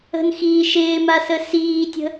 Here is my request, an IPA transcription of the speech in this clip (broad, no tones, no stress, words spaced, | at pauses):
ə̤nxiː ʃɪːmasə siːtʲə̤